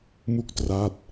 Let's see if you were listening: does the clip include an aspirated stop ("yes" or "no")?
no